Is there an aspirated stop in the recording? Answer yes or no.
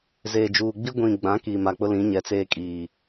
no